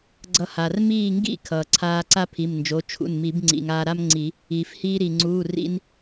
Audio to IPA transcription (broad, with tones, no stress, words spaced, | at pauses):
ɡ͡ǀʌ˧ha˩r miː˥˨ŋɡḭ˥ kʰʌː˩ǀʰaː˧ ǀa˥pʰi˩˧˩mnd͡ʒo˩˧˩ t͡ʃʰṵ˩˧˩nmi˨˩˦b ŋ͡ǀḭ˩ŋ aː˧ɾa˥mŋ͡ǀi˨˩˦ | iː˩fhiː˧ɾi˩ ŋ͡ǀuː˩˧˩rḭ˧n